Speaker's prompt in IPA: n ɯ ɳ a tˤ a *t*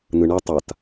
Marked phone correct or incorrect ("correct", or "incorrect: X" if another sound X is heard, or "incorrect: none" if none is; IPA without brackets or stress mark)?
correct